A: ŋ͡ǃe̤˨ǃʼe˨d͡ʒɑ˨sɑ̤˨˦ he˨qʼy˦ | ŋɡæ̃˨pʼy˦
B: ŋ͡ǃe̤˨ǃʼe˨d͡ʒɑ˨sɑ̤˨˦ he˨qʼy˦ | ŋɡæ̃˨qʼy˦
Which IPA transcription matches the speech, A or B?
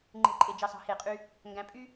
A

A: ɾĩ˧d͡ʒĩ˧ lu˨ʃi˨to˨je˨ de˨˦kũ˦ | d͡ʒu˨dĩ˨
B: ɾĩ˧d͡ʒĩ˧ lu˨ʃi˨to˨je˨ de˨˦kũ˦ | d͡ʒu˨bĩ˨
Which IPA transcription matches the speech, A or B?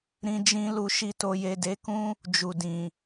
A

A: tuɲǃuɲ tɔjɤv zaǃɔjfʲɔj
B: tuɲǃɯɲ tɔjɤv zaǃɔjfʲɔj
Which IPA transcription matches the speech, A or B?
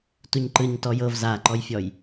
B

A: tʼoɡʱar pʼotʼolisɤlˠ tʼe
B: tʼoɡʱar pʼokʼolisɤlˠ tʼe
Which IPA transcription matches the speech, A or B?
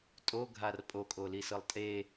B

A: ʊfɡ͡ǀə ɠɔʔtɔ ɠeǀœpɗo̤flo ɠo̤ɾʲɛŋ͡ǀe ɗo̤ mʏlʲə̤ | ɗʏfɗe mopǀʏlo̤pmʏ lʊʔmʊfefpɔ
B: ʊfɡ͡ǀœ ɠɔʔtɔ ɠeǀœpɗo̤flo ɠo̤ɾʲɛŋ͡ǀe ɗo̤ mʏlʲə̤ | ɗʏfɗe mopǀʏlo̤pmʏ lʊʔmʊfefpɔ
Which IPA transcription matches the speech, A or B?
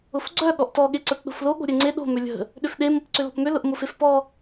B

